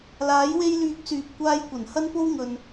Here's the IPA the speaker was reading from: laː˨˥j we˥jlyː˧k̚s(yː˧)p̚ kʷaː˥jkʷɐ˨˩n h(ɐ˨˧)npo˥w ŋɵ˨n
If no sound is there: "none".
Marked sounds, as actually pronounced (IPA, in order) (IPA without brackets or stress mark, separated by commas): yː˨, ɐ˥